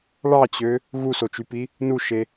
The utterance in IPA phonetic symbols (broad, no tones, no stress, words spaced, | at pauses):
ɭɑt͡ɕø | ɣusot͡ʃypi | nuʃe